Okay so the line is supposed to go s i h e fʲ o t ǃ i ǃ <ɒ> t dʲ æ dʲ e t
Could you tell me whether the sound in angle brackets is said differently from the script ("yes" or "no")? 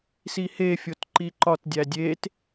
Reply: no